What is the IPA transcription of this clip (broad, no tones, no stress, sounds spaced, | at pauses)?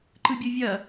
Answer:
ǃ ɯ bʲ ɯ vʲ ɐ